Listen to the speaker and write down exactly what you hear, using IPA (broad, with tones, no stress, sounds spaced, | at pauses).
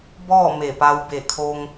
b ɔː˥˨ m e˧˩ p a˧ w b e˧˩ kʰ o˧ ŋ